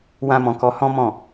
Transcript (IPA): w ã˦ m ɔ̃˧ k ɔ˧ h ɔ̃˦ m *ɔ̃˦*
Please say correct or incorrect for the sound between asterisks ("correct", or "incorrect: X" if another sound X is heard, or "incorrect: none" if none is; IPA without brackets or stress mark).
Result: incorrect: ɔ̃˦˨